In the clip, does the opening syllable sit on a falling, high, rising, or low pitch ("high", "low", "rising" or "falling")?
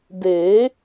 rising